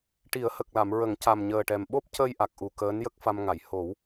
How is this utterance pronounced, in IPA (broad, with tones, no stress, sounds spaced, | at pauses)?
ʈ i˨˩˦ ə̯ h ə˨˩ k̚ l a˨˩˨ m ɹ ə˨˩˦ ŋ c a˨˩ m ɲ əː˨˩ ʈ ɛ˨˩ m ɓ o˦˥ p̚ c ə˧ j ʔ a˨˩ k̚ ʔ u˨˩ k əː˧˥ n j ə˦˥ k̚ f a˧ m ŋ a˨˩˨ j h o˨˩˦ w